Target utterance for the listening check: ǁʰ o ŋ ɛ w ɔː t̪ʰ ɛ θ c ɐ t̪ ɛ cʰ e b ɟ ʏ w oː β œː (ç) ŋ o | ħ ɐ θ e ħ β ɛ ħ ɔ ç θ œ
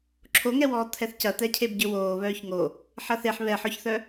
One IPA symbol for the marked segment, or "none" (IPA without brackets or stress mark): ç